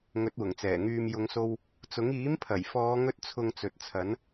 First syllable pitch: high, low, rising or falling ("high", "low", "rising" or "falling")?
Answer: rising